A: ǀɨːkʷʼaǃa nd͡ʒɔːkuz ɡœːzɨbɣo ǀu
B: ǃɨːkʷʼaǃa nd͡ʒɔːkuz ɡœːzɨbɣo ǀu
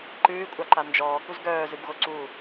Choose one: B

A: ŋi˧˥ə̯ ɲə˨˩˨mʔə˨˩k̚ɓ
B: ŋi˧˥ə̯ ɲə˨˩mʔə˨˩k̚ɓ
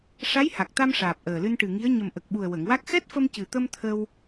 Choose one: B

